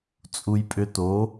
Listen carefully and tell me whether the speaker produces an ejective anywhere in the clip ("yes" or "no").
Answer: yes